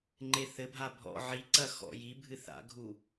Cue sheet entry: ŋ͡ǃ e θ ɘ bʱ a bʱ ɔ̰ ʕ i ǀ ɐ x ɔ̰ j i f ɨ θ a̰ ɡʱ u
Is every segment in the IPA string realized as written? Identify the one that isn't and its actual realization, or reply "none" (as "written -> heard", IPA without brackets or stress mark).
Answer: f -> bʱ